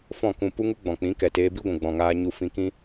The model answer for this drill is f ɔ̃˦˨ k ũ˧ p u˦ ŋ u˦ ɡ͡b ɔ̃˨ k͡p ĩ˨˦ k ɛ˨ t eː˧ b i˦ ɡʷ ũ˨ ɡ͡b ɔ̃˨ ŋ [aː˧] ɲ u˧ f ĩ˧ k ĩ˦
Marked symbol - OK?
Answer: yes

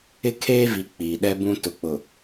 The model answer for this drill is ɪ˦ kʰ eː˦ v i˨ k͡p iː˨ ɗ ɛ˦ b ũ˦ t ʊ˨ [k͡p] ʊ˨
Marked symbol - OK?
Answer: yes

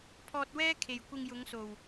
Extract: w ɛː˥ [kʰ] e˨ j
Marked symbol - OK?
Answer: yes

